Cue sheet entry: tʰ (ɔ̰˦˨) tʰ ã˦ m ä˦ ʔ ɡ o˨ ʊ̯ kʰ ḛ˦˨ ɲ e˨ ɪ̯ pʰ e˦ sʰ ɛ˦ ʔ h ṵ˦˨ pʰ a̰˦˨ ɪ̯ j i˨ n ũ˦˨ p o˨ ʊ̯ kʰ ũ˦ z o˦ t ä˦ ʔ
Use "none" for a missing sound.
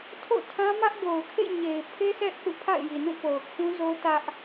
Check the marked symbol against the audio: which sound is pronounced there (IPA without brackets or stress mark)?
o̰˦˨